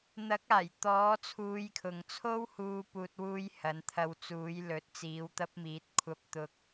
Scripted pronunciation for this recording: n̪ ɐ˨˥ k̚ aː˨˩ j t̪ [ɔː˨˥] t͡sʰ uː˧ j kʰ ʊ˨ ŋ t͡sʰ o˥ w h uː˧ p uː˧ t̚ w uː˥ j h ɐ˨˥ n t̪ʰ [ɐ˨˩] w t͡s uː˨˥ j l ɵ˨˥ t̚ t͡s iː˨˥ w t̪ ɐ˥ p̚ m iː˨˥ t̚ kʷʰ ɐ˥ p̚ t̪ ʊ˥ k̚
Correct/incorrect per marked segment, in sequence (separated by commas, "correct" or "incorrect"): correct, incorrect